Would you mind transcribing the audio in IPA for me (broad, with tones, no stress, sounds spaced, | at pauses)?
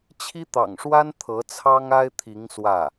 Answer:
t͡ɕʰ i˥ t̪ ɑ̰˨˩ ŋ ʂ w a˥ n t̪ʰ ɤ˧˥ t͡sʰ ɑ˥ ŋ a˥ ɪ̯ t̪ʰ i˧˥ ŋ s w ä˥˩